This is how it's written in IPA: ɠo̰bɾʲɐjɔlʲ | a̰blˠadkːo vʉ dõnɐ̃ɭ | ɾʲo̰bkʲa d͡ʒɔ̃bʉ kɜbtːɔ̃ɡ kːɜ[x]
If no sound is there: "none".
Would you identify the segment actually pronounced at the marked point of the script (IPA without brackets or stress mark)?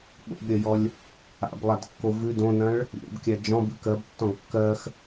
x